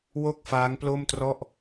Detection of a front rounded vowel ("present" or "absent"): absent